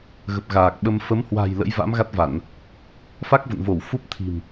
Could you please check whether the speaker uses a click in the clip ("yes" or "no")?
no